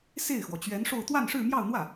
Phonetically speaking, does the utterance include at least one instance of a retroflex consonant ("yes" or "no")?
yes